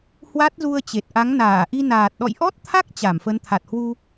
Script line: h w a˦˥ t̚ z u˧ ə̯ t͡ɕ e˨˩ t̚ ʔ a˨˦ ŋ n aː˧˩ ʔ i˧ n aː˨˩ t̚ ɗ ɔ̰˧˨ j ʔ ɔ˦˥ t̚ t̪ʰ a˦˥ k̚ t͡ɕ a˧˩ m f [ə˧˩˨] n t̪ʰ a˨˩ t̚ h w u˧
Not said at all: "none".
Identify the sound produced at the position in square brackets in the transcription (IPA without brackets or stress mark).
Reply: ə˨˦